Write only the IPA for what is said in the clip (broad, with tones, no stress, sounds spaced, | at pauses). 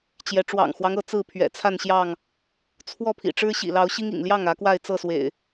t͡ɕ j ɛ˨˦ ʈ͡ʂ w ɑ̰˨˩ ŋ x w ɑ˦ ŋ ɤ˨˦ t͡s ɹ̩˥˨ pʰ ɥ ɛ̰˨˩ t͡sʰ a˥˨ n ɕ j ɑ˥˨ ŋ | t͡sʰ w ɔ˥˨ pʰ ḭ˨˩ ʈ͡ʂ ɻ̩˦ ɕ ḭ˨˩ l ɑ˨˦ ʊ̯ ɕ i˦ ŋ ḭ˨˩ ŋ l j ɑ˥˨ ŋ ä˨˦ k w a˥˨ ɪ̯ t͡s ɤ˥˨ s w ḛ˨˩ ɪ̯